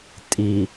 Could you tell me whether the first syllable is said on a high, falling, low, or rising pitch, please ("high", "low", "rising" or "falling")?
low